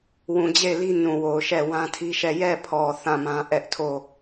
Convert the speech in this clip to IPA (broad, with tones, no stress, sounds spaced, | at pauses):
w ũ˨ d͡ʑ e˦˨ ɪ̯ l i˦ n ũ˨ w o˨ ʊ̯ ʃ ɛ˦˨ w ã˦ tʰ i˦ ʃ ɛ˦˨ j ɛ˦˨ pʰ ɔ˨ θ ã˦˨ m ã˦ ʔ ɛ˦ ʔ tʰ o˦˨